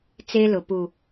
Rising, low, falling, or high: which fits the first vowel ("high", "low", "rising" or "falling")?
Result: high